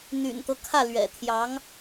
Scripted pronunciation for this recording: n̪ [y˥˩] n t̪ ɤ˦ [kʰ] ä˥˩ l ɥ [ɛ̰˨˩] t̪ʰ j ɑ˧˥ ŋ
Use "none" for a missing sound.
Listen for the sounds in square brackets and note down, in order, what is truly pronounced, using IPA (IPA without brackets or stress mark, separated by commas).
y̰˨˩, kʰ, ɛ̰˨˩